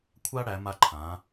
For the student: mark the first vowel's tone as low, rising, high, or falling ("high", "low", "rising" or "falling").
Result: high